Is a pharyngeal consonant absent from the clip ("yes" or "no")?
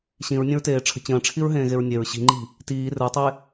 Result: yes